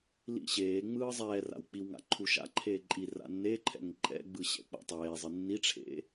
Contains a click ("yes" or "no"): yes